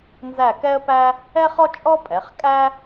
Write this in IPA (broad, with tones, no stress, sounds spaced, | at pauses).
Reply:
n z æ˦˨ k ɛ˥ ə̯ p æ˥ | ɛ˥ χ ɔ˥ t͡ʃʼ ɔ˥ pʼ ɛ˩˧ χ kʼ æ˥